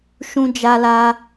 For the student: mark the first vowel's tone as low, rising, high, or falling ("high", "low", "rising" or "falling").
high